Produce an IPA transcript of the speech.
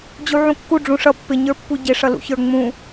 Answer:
d͡ʑ u ʕ ũ kː u ɖ͡ʐ ũ ʂ ʌ pː ɪ ɲ ə˞ pː u ɟ ɪ ʂ ʌ l ṵ ç ə˞ ŋ͡m ũ

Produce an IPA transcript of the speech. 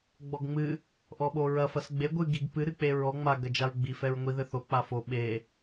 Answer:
ɡ͡b ɔ ɡ ŋ͡m ɨ | ʔ ɔ ɓ o ɹ ɐ f ɐ s ɡ͡b e ɡʷ ɨ ɡ i ɡ p ɨ ɾ ɨ k͡p e ɹ ɔ ŋ͡m a ɡ ɐ d͡ʒ a ɹ ɡ͡b i f ɛ ɹ ŋʷ i ð ɘ θ o k͡p a f o ɓ e

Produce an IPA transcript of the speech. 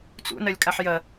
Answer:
t͡s ṵ n ɐ lʲ kʼ a ħ j ɐ

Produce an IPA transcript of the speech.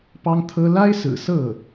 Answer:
p ɑ˥ ŋ t̪ʰ ɤ˥ l a˥ ɪ̯ s ɹ̩˨˩ s ɤ˥˩

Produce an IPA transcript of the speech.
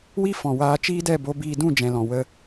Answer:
w i˦ f ɔ̃˨ w aː˧ t͡ʃ iː˦ d ɛ˦˨ b o˧ b iː˧ d ũ˦˨ d͡ʒ ɛ̃˨ l ɔ̃˨ w ə˧

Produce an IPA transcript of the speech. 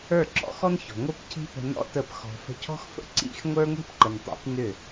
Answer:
ə˞˦˨ ǁ ɔ̰˦ x ɔ˦ n ç ɔ̤˨ ŋʷ ə˞˦ p cʰ i̤˦ p ə̤˧ n ɔ̰˦ t ə˦˨ p x ɔ̤˧ f ə̤˦ cʰ ɔ̤˦ x f ə̰˦ ǀ ḭ˦˨ x ŋʷ ə˞˦ ŋʷ i̤˦ p ǃ ə˨ n tˤ ḭ˨˦ p n ʏ˦˨

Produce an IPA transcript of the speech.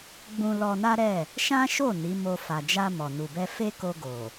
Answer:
ɡ͡b ũ˧ l ɔ˧ n a˦ ɾ ɛ˦˨ | ʃ ã˦ ʃ o˦˨ n i˨˦ m o˧ f a˨ d͡ʒ a˧ m ɔ˨ n u˨ b ɛ˧ f e˦ k o˧ ɡ o˨

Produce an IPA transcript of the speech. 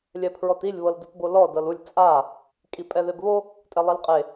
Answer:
lʲ ɛ pʰ ɹ ɔ t i lʲ β ɤ l d u t b o l ɔ d ɤ l u lʲ t͡sʼ a | kʼ i pʼ ɛ ð e b β o | tʼ ɛ lˠ e l qʼ e

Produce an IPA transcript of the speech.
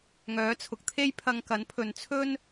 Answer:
ŋ œː˨˥ t͡sʰ ʊ˨ k̚ t̪ʰ e˥ j pʰ ɐ˧ ŋ k ɐ˨˥ n pʰ ɵ˨ n t͡sʰ ɵ˥ n

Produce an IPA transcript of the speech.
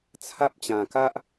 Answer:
t͡sʰ a˦ p̚ t͡ɕ ã˧ k a˦ ʔ

